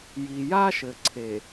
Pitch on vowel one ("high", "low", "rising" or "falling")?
low